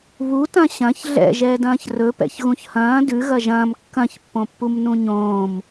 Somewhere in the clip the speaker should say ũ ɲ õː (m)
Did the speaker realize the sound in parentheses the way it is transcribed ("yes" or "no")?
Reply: yes